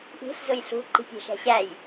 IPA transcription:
ʔi̤ɬ zʊjɬṳ ǃi̤pʲæ̤ʃæ̤ɕæj

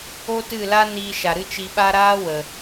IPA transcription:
o˦tɨ˦˨ la˦niː˧ ʃa˨ɾɨ˦t͡ʃi˧ɓa˦ ɾaː˦wə˨

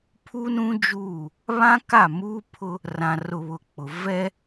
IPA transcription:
pʰu˦ nũ˦d͡ʒuː˦˨ | βã˦ ka˦˨muː˦pʰʊ˦ | rã˨rʊ˨ βʊ˨k͡pʊ˨ vɛ˦

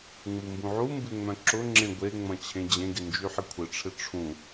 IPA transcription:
ŋ͡mumbũʕumbɪ ŋ͡mœ̃ǁʊŋ͡ǁẽ ɡʷeŋ͡mɐ̃ t͡ɕʰẽd͡ʑẽɡɪ nd͡ʒyħɪkʷʰɪʈ͡ʂʰɪ ʈ͡ʂʰũ

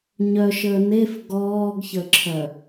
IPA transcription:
ɲœʃəː nef ɡɔːɡçəǁʰœ

